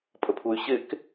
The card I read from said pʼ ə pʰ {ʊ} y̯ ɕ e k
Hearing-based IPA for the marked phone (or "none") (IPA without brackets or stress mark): u